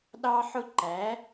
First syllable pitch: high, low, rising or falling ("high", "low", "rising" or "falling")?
high